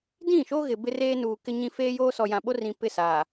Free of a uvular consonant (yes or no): yes